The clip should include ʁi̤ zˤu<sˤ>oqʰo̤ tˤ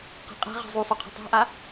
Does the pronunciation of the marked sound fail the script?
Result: no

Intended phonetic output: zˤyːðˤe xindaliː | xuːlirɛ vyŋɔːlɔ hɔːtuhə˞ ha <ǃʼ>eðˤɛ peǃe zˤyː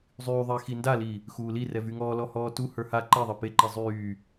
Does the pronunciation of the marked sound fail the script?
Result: yes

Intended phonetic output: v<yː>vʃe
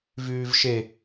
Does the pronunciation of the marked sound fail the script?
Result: no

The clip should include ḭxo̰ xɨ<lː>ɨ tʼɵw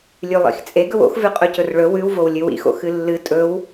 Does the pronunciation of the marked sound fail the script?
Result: no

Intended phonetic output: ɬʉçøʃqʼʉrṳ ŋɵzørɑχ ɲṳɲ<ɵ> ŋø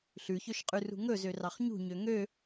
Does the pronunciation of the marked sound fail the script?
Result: yes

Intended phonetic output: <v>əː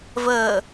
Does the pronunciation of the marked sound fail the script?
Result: no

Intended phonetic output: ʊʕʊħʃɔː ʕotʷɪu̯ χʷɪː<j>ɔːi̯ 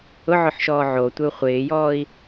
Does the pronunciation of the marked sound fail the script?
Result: no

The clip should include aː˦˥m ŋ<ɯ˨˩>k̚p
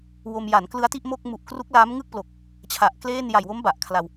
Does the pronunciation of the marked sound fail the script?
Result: yes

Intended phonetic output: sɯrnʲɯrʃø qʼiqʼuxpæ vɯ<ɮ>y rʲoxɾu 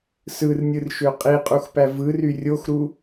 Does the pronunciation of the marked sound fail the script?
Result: yes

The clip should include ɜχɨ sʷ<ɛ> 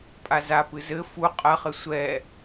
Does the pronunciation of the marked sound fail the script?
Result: no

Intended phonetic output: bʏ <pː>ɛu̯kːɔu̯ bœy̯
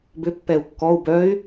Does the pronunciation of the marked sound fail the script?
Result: no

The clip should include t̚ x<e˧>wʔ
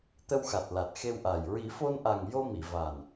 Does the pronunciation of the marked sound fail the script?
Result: no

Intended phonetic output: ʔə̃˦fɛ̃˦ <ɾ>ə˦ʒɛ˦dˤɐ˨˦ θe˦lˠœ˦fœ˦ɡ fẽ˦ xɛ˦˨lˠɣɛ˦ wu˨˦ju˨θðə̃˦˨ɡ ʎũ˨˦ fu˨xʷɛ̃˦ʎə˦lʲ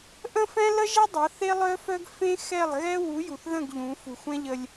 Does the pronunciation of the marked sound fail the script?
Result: yes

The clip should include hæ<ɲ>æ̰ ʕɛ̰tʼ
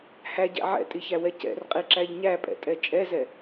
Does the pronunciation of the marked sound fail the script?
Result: yes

